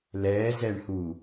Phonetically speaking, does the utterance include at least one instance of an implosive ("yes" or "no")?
no